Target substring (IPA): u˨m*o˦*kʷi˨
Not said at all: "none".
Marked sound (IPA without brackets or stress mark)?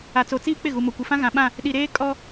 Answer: o˨